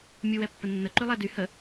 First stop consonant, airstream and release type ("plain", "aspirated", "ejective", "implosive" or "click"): plain